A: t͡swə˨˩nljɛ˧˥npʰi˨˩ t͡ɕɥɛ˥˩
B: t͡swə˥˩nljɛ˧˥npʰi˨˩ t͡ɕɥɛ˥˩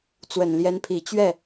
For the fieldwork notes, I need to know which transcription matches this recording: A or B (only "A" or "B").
A